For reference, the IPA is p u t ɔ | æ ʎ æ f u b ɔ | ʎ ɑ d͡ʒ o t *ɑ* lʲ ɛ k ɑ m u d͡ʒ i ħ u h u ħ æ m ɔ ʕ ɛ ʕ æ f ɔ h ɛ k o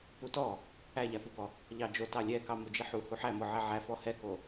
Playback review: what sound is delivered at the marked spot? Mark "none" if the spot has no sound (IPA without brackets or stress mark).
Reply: ɑ